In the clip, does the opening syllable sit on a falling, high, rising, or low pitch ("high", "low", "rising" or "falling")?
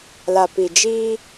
low